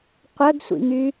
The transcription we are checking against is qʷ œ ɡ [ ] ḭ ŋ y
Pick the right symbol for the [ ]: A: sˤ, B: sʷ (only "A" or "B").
B